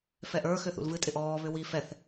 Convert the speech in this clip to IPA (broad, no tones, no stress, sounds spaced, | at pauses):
f ɛ ʔ ə˞ x ʏ θ ṵ l v ɨ tʼ ɪ ʔ ɔː β ʏ w i f ɛ θ